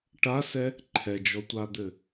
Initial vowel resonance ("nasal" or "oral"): oral